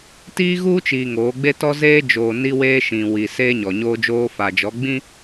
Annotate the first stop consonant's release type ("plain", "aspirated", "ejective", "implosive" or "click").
plain